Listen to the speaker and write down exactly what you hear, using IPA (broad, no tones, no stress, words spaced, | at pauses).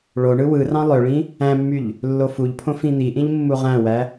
ɭoɳɯ wɯrɑ̃ lˠøɭĩ | æ̃mːyʎ | lːofuʎpʰõ fĩn̪iʔĩʎ mːuʁæ̃wæ